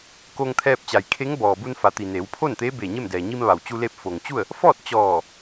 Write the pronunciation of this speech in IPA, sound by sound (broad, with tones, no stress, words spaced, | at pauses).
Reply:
ko˧ŋt̪ʰɛː˧p̚t͡ɕa˩jkʰe˧˥ŋ bɔː˩bu˧nfa˩t̪i˩ ne˩˧wpʰo˥˨nt̪eː˧˥ beː˧˩ɲe˥˨mdɛː˩ ɲi˧mʋa˩wt͡ɕu˧leː˧p̚ fo˩ŋt͡ɕu˥˨ə̯ | fɔː˥˨t̚ t͡ɕɔː˧˩